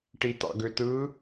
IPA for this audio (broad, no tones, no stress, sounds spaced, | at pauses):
ʈ i t ɑ̰ ɡ ø t ɯ